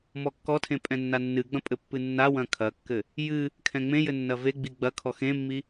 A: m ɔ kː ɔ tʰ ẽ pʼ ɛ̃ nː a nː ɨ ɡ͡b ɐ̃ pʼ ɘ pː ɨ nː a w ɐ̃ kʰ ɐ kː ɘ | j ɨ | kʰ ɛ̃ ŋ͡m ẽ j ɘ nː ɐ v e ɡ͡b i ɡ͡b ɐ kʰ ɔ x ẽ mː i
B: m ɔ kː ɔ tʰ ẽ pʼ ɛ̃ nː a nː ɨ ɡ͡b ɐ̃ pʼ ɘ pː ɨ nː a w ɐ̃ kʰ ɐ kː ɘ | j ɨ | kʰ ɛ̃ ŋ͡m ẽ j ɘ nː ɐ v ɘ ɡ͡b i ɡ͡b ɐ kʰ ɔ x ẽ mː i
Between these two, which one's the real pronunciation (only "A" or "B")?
A